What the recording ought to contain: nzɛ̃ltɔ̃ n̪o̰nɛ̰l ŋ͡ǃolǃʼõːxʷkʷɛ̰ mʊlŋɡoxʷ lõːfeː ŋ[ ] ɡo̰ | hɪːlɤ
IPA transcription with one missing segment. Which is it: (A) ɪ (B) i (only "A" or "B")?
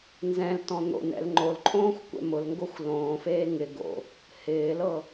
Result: A